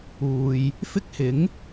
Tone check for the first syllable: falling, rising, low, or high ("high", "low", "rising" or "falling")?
low